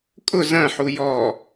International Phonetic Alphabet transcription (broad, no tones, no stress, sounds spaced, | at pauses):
kʼ ʊ z ɐ̃ ħ u j ɔ